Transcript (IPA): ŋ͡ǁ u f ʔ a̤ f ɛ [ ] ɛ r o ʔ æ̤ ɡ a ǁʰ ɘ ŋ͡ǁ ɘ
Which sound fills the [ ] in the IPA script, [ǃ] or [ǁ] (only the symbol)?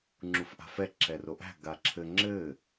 ǁ